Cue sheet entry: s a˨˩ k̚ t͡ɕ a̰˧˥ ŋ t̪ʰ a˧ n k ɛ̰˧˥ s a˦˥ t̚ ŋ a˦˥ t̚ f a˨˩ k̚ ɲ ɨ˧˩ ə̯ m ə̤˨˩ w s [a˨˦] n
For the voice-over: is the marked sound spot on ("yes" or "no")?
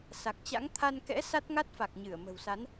yes